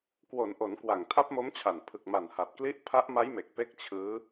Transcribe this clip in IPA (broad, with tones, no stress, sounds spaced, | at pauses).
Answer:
k w o˩˦ n ʔ o˩˦ n k w a˨˩ ŋ tʰ a˦˥ p̚ m o˦˥ m t͡ɕʰ a˨˩ n pʰ ɯ˨˩ k̚ m a˨˩ n h a˨˩ t̚ k l i˦˥ ʔ pʰ a˦˥ ʔ m a˦˥ j m e˨˩ k̚ p e˥˩ k̚ t͡ɕʰ ɯː˦˥